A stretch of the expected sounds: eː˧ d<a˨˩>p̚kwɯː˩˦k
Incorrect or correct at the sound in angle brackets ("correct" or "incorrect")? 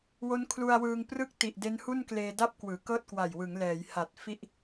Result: incorrect